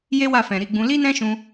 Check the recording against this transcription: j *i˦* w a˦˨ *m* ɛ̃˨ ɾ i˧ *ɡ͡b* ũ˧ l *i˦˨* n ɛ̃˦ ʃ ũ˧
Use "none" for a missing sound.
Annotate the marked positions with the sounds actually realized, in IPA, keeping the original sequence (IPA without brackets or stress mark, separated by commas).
e˦, f, ɡ͡b, i˦